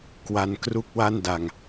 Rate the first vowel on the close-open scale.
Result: open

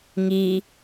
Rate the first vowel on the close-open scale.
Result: close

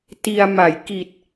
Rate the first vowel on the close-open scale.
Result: close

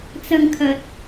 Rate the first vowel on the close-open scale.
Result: open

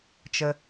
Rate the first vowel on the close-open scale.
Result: mid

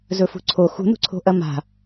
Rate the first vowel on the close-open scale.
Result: mid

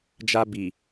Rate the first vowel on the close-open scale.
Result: open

